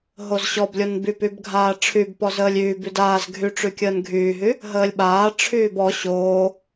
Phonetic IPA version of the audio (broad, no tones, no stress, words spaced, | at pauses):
ɦozɕɔblʲon bypybɡʱaː ʈ͡ʂʰybpɔ zəːlʲyːby daːz ɡʱyʈ͡ʂykʲəːn ɡʱyːɦy | ɦəːlʲɓaː ʈ͡ʂʰyːbɔ ɕoː